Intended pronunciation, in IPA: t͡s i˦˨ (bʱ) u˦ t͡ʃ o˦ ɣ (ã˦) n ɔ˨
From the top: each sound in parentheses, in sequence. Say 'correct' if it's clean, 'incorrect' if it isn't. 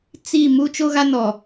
incorrect: m, incorrect: a˦

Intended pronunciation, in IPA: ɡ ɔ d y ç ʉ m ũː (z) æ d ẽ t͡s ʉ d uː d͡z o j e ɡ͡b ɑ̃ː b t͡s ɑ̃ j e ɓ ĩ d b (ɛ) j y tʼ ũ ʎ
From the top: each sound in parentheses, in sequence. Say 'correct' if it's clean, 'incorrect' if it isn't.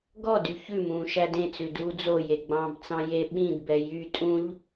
incorrect: ʃ, correct

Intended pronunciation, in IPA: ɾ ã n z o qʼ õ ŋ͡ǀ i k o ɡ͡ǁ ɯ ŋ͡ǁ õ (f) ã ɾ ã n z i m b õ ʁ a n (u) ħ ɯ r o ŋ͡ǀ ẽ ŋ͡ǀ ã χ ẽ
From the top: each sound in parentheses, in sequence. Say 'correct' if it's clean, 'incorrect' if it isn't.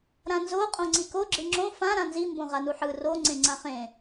correct, correct

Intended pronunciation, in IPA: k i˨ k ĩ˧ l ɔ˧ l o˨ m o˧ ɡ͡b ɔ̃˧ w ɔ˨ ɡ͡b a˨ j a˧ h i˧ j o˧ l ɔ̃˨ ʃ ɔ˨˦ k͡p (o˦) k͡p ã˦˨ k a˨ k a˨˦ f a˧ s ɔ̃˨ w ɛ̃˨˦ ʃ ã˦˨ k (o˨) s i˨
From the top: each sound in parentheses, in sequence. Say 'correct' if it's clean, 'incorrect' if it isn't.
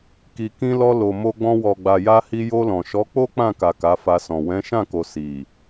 correct, correct

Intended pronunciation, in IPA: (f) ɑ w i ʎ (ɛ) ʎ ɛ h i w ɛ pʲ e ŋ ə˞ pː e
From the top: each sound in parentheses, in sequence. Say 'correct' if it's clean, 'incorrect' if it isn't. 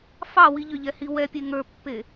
correct, incorrect: ʏ

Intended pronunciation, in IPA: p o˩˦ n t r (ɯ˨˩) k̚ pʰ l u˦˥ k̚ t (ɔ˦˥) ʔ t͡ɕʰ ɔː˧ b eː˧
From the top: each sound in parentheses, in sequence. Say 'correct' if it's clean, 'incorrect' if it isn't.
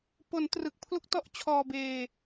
correct, correct

